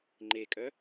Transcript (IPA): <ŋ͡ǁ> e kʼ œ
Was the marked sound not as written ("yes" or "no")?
yes